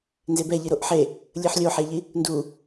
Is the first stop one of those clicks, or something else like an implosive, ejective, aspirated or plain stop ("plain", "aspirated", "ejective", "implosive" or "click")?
plain